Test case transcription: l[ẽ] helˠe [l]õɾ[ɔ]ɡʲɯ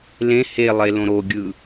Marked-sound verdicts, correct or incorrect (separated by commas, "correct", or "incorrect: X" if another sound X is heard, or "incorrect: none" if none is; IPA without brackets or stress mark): correct, correct, incorrect: o